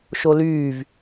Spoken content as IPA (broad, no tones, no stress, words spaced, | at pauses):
ʃolyːv